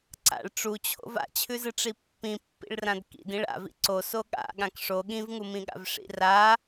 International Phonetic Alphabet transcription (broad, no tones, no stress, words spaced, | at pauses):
ǀa̰ɭ ʈ͡ʂut͡ɕʰo̰v a̰t͡ɕʰʉzɨʈ͡ʂi pːĩpːḭɭrãd kḭdĩɭ a̰vḭ ǀoso ɠa̰ ɠãkʂo ɠĩvŋumĩɠa̰v ʂḭra